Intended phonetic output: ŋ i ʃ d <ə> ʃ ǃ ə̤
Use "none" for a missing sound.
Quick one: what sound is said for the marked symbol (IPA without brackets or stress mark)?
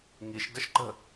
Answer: ə